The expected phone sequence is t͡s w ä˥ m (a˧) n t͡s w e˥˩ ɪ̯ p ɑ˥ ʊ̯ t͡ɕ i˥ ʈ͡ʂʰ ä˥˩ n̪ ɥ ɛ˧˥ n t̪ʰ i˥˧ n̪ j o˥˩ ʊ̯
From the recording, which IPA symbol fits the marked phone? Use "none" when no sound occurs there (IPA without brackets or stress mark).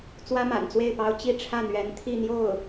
a̰˨˩